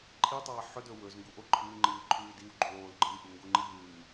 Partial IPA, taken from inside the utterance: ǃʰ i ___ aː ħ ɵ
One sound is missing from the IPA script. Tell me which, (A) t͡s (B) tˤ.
B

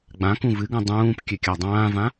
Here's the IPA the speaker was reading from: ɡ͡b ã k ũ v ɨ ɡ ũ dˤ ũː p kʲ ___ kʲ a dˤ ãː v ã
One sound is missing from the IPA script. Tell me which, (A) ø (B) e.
A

